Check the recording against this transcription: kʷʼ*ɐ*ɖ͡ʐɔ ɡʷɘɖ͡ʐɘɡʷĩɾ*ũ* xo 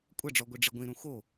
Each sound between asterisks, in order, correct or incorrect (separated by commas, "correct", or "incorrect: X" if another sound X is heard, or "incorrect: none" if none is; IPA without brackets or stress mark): correct, correct